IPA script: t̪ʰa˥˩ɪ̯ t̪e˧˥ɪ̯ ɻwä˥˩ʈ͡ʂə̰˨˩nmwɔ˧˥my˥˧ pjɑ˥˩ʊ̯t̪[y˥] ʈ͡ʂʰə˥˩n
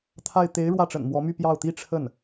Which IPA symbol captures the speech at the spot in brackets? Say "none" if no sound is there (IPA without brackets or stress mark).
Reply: i˥